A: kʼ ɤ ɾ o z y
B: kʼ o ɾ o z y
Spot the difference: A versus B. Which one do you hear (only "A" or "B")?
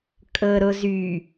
A